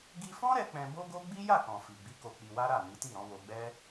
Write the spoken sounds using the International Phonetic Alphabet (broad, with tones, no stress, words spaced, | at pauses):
ɡi˧fɔ̃˦ɾɛ˧ k͡pɛ̃˧bo˦ɡo˦ ɡ͡bi˦ja˦˨kɔ̃˨ fi˨ɡ͡bi˨˦ ko˧k͡pi˧wa˦ɾa˦˨ ni˨˦ti˦˨ɾɔ̃˨˦ wo˧ɡ͡bɛ˦